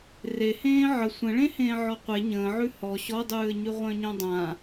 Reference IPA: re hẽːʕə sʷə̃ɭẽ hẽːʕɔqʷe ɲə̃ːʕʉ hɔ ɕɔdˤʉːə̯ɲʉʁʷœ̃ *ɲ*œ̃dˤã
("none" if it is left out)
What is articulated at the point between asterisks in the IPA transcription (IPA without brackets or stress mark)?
ɲ